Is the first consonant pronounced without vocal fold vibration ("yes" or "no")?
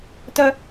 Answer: yes